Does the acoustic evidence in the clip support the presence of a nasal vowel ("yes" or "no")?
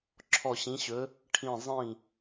yes